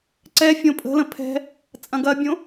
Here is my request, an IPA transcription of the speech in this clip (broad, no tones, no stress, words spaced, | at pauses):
ǀɛ fʲõpʼə̤lə̃ pʰɛ̤ | t͡sʼɐ̃ɡɐbʲõ